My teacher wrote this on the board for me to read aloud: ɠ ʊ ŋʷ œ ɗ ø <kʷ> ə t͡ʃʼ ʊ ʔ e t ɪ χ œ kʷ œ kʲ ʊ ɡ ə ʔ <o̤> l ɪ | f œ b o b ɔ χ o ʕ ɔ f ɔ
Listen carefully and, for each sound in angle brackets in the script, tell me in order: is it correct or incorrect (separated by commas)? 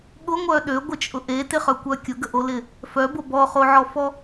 incorrect, incorrect